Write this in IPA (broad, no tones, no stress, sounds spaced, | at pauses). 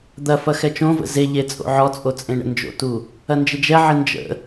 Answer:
d̪ ɐ f ɐ x ɛ t͡ʃ õ v ə̰ z e ʎ e t͡sʼ o̰ ʕ ɔ t͡sʼ o t͡sʼ ẽ ɳ ə̰ n d͡ʒ o̰ t u | ɐ n d͡ʒ ɪ d͡ʒ ɛ ʕ ɪ n d͡ʒ ə̰